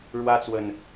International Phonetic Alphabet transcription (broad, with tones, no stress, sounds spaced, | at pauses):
ɻ w ä˦ t͡s w ə˨ n